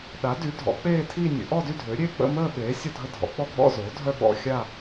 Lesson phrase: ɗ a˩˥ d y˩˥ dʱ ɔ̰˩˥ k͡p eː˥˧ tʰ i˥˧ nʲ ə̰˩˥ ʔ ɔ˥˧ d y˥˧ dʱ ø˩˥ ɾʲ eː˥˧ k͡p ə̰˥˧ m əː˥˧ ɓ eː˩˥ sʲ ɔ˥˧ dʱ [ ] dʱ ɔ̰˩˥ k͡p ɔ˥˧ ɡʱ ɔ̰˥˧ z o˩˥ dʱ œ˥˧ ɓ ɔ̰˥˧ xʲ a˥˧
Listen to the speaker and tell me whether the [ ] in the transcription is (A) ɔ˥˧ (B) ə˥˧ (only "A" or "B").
B